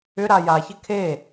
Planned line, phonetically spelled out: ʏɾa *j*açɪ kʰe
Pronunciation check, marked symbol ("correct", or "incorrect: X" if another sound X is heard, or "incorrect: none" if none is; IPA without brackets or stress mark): correct